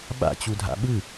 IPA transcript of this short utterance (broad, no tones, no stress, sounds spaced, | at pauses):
ɓ a̰ t͡ɕ u dʱ a̰ ɓ ɯ